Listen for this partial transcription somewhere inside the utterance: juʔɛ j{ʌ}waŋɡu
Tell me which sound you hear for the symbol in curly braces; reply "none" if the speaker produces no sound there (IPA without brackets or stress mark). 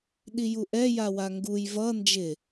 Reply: a